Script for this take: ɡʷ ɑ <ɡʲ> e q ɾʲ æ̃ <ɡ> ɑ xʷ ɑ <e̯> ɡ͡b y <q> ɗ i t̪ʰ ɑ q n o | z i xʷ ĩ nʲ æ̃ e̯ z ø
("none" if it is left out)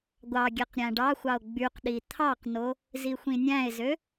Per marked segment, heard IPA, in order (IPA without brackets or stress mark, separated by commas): ɡʲ, ɖ, o̯, q